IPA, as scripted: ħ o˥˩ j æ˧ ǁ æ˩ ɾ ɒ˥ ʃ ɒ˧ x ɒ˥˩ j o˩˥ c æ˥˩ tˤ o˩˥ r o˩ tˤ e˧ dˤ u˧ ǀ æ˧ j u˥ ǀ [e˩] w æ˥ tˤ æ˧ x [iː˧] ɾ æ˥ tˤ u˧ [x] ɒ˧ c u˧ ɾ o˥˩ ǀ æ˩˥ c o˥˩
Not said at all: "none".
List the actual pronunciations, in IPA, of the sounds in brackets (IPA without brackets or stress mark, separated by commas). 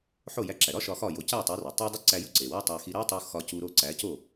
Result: e˩, i˧, x